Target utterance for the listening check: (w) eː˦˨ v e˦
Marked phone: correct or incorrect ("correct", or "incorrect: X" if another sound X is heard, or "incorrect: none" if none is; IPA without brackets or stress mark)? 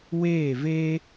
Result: correct